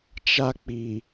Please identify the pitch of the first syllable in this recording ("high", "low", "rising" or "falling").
high